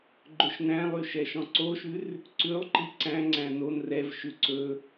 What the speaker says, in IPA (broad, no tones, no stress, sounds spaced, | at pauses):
ɡ͡ǃ ɵ ʃ n æ̃ lˠ y ʃ ɛ ʃ ɔ̃ ǀ o ʃ ʉ r | ǀ ʉ lˠ ǃ i ǀ æ̃ ŋ͡ǀ æ̃ n o n r ɛ v ʃ ʉ ǀ ɵ